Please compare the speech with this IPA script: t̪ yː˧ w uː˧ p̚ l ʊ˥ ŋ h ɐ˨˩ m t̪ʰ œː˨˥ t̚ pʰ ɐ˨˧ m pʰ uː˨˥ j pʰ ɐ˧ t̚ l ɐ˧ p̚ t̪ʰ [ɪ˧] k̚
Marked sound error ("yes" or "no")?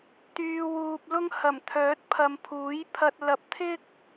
yes